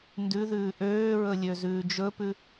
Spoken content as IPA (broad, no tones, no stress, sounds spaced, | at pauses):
n d ʉ ð ʉː ʔ øː ɹ ɵ lʲ ø z ʉː d͡ʒ ɵ p ʉ